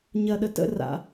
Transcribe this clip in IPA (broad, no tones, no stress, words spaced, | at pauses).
ɲɐɗə tə̰ ra̰